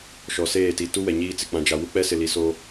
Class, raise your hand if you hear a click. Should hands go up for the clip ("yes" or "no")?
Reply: no